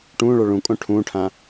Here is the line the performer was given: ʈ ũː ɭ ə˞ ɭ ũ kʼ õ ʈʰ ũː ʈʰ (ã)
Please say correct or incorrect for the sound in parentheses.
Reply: correct